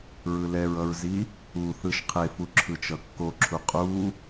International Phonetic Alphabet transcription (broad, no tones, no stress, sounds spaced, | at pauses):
ɹ ɯ l ɛ ɹ ʌ ɹ z i | u θ ɯ ʃ qʰ e f u ǁʰ ɯ t͡ʃ ʌ kː o ǁʰ u qʼ u